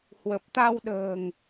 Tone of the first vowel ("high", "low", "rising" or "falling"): low